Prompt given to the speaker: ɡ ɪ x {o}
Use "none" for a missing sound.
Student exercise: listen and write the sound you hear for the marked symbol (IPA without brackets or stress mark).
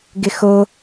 o